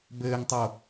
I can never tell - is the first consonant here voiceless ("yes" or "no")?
no